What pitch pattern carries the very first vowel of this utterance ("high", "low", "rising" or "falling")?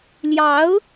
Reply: rising